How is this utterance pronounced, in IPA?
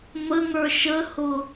m ə ŋ ə˞ ʃ ə h ʊ

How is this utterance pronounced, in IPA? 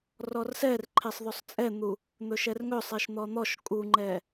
r ɔ r s ɛ r ǃʰ e sˤ ð ɵ sˤ t͡sʼ ɛ n̪ u | n̪ ɵ ʃ ɛ r ŋ ɵ sˤ e ʃ n̪ ɔ n̪ ɔ ʃ kʼ u ŋ͡ǃ ɛ

